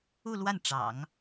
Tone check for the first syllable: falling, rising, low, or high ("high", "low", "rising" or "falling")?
falling